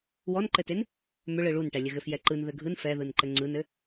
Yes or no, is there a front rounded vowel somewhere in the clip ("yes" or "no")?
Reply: yes